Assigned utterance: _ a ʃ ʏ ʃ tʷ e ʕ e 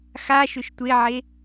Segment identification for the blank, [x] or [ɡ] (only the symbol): x